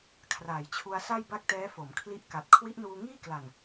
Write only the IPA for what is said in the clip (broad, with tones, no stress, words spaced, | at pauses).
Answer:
kʰraː˩˦jt͡ɕʰu˧a̯ sa˥˩jba˥˩k̚tɛː˦˥fo˩˦m kʰli˦˥ʔka˨˩t̚ kʰwi˦˥ʔnuː˧ŋiː˥˩kla˨˩n